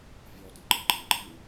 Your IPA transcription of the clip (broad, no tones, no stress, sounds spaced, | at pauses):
vʲ ɔ d ə̃ ǃ ɪ ɡ͡ǃ ĩ ɡ͡ǃ i w